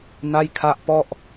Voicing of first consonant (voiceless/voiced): voiced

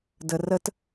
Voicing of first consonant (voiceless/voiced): voiced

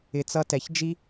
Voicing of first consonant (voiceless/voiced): voiceless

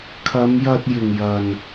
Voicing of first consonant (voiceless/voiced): voiceless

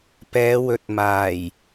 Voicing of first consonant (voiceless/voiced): voiceless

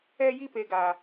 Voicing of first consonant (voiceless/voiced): voiced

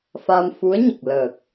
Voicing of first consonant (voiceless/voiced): voiceless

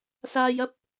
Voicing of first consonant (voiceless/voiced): voiceless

